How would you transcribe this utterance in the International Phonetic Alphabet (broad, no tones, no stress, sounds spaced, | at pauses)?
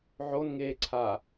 ʕ o n ŋ eː ǀʰ a